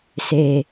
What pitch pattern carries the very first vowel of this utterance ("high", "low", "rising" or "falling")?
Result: low